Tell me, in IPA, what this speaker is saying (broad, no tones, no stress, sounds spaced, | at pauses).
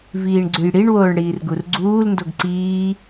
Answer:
v iː ɳ ɡ͡ǀ ʉ j ɽ i ɳ w oː ɳ ɽ iː r ɡ u r ɡ͡ǀ uː l n d o ɡ ǀ iː